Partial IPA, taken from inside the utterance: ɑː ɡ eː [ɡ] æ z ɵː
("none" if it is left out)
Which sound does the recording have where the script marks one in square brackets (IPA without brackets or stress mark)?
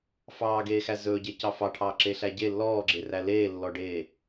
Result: x